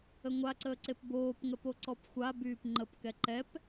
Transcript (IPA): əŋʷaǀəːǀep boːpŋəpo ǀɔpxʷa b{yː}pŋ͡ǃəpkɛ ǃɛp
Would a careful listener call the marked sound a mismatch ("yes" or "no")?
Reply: no